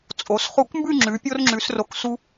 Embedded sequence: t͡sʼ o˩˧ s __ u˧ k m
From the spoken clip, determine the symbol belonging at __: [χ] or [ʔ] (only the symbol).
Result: χ